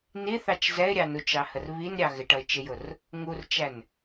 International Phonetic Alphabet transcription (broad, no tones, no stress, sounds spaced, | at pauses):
n i θ ɑ t͡ʃ z ɛ ɪ̯ ɾʲ ɑ n u t͡ʃ ɑ h ə r β i n ɾʲ ɑ ɣ ɪ ʈ ʌ ɪ̯ t͡ʃ ɪ j ʊ r | ŋ u r t͡ʃ æ n